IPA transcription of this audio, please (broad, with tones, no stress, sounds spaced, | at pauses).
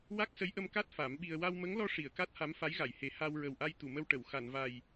w a˦˥ k̚ s ə˧˥ j ʔ ə˧ m k a˦˥ t̚ f a˨˩˦ m ɓ i˧ ə̯ w a˧ w m ə˧˥ ŋ l ɔ˧ ʂ i˨˩˨ ə̯ k a˦˥ t̚ h a˧˥ m f a˧˥ j ɣ a˨˩˨ j h e˨˩˦ h a˧ w ɹ ə˨˩ w ʔ a˧ j t̪ u˨˩˨ m ə˧ w ʈ ə˨˩˨ w x a˨˩˨ n v a˨˩ j